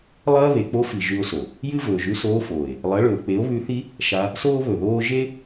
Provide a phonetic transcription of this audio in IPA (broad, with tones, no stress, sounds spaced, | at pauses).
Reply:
lˠ ɐː˦ β e˨ k͡p o˦ f i˨ ʒ ʉ˧ o̯ s o˨ | j ɨ˦ v ɵː˨ ʒ ʉ˧ s oː˧ f oː˨ e̯ | lˠ ɐ˨˦ ɭ ɵː˨ k͡p e˨˦ o̯ β ʉ˧ θ i˦ | ʃ a˧ | s oː˦ β ɵ˨ ð oː˦ ʒ e˦